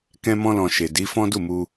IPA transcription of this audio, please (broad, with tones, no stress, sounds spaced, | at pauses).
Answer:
k ɛ̃˦ m ɔ̃˦ l ɔ̃˧ ʃ e˨ d i˨˦ f ɔ̃˦ d u˦˨ m u˧